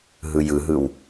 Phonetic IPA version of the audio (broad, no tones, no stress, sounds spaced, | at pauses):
ɦ ɯ j ɯ ɦ ɯ w